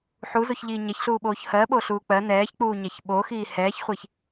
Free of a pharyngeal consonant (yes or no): no